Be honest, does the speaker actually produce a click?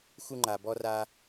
yes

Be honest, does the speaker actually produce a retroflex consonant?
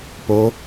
no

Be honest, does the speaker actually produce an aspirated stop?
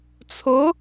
yes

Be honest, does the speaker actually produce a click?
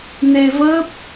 no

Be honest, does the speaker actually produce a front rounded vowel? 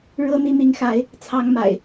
no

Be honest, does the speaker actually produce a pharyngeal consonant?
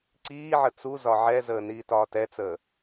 yes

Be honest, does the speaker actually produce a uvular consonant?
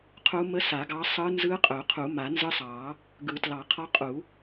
yes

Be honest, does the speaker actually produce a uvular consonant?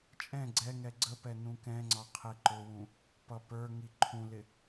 yes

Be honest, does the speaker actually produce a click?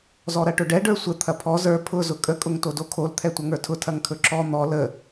yes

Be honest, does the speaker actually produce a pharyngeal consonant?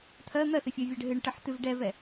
yes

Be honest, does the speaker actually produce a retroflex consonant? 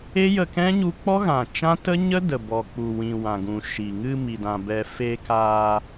no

